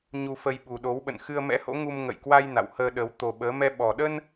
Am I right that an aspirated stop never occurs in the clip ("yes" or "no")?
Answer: yes